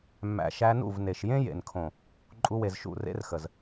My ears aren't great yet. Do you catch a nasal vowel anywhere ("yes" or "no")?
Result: yes